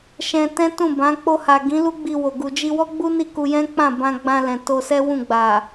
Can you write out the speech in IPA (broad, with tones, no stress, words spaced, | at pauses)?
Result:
ʃɛ̃˧tɛ̃˦tũ˦˨bã˨˦ k͡po˧ha˨ ɡĩ˨˦lu˦ ɡ͡bi˧wo˨ ɡu˨d͡ʒi˧wɔ˦ɡ͡bu˦ ni˦˨ku˧jɛ̃˦ k͡pã˦˨bã˧ɡ͡bã˧ lɛ̃˨to˧sɛ˦wũ˦˨ ɡ͡ba˨